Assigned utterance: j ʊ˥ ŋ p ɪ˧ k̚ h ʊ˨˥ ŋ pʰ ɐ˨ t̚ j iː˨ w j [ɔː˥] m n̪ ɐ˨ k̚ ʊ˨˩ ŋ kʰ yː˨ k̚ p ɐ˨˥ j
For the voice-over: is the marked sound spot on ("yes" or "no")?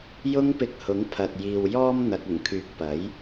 no